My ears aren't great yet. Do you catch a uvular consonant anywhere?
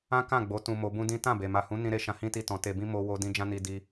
no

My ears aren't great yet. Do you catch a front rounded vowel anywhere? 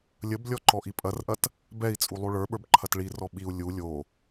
no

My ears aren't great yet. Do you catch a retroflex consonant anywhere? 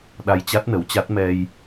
no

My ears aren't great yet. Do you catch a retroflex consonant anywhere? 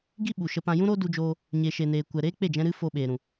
no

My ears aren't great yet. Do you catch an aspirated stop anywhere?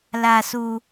no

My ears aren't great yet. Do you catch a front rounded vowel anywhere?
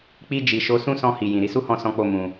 no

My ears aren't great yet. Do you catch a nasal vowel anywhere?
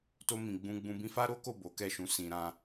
yes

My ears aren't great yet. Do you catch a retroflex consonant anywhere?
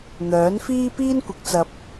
no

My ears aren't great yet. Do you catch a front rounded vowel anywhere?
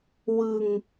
no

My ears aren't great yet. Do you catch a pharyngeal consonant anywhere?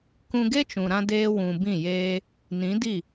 no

